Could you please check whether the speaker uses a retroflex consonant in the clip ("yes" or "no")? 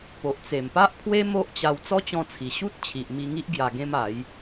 no